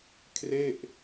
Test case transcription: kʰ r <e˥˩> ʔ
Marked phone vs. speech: correct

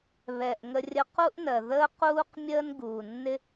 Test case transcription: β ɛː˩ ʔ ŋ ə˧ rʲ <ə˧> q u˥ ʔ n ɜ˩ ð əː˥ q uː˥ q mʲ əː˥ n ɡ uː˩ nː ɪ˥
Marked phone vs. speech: correct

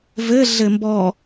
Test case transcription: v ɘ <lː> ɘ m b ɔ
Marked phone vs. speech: incorrect: ɮ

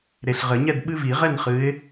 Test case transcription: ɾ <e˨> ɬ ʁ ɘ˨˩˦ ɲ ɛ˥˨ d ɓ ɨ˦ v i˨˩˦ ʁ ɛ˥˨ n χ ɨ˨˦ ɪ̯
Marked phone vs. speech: correct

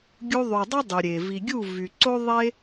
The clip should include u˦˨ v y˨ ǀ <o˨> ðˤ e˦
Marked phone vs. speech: incorrect: o˦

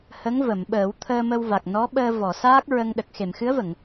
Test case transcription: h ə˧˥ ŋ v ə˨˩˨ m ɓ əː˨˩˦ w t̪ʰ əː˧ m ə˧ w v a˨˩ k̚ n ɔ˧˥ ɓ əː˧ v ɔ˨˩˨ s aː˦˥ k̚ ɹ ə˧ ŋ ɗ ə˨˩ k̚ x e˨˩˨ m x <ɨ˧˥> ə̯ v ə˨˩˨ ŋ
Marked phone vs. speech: correct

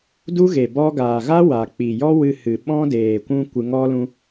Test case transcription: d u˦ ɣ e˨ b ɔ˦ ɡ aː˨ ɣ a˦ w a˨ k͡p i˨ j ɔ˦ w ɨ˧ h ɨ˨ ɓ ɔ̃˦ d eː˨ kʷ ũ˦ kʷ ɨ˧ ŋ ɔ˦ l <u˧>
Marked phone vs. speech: incorrect: ũ˧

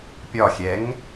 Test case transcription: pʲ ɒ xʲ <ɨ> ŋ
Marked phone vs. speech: incorrect: ɛ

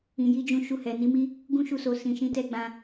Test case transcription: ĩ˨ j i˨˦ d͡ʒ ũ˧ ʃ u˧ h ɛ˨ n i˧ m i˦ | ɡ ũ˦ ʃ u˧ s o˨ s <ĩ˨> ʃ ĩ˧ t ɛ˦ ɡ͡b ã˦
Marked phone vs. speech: correct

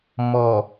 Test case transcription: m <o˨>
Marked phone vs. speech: incorrect: ɔ˨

